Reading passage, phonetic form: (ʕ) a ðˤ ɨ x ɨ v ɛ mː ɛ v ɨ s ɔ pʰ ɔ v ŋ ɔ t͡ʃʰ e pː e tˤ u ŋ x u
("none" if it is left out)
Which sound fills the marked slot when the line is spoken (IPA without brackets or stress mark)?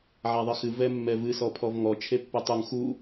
ʕ